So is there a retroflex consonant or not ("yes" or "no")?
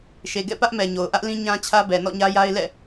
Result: no